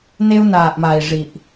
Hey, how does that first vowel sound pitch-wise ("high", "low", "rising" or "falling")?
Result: high